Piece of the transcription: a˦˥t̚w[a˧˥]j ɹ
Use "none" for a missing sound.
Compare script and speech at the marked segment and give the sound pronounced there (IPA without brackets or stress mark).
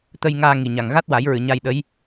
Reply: a˨˩˦